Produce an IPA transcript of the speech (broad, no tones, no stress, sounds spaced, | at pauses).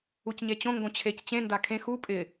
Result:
u c ɲ e t͡ɕ õ ŋ ɡ õ t͡ɕʰ e c t͡ɕ ẽ n d a kʰ ẽ x u pʼ ɪ